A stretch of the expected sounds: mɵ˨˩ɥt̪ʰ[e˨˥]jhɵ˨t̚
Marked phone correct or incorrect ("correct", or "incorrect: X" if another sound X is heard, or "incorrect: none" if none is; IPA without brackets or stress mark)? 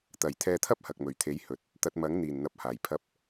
correct